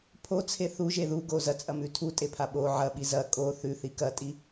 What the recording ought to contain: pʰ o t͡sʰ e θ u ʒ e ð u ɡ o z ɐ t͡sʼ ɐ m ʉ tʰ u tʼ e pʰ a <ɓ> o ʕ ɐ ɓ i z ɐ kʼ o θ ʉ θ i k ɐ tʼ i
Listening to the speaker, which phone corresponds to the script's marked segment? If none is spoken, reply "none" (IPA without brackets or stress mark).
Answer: ɓ